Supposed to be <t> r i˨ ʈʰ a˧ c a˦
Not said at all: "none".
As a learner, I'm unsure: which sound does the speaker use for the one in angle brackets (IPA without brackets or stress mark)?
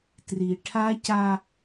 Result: t